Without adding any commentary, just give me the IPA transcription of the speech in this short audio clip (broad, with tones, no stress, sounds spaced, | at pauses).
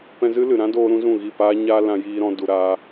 p ɛ̃˧ z ɨ˦ l ɨ˨ ɾ ã˦ d oː˦ ɾ ũ˦ z ũ˦˨ ɣ i˦˨ p aː˦ ɲ aː˦ l ã˧ j iː˦ ɾ ɔ̃˦ d u˧ ɾ aː˦